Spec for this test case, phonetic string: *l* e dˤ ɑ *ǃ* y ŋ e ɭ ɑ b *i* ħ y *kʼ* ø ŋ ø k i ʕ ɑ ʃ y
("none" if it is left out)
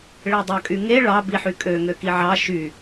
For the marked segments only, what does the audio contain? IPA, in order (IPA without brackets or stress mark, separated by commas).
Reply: ɭ, kʼ, i, kʼ